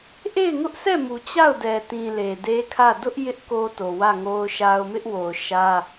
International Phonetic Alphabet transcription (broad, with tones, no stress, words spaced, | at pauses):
ʔe˦˨ɪ̯ŋʊ˦ʔsʰɛ˦˨mu˨ t͡ɕa˦˨ʊ̯dɛ˨tĩ˨ le˨de˦kʰä˦˨ dʊ˦ʔ jɪ˦ʔ ko˦to˨ wä˦˨ŋo˦ʊ̯ʃa˦ʊ̯ mɪ˦ʔwo˨ʊ̯ ʃä˦